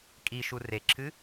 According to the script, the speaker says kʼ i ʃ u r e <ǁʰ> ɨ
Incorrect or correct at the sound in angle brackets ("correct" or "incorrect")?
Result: correct